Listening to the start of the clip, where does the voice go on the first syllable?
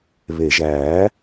low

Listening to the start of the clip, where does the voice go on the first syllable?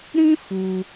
high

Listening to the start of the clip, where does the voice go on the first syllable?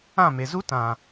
falling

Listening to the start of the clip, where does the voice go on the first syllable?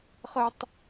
high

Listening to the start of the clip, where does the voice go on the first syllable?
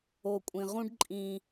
low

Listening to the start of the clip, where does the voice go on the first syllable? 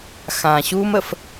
low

